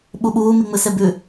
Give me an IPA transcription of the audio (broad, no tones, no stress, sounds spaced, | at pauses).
ɓ u ɓ uː m i ŋ͡m ɨ s e b ʉ